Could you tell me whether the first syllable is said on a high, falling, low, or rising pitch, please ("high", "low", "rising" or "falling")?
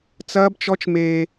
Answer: high